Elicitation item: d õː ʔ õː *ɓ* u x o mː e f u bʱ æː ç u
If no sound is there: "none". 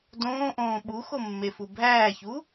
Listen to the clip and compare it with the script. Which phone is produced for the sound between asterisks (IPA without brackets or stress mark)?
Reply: ɓ